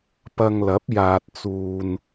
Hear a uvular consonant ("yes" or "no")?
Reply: no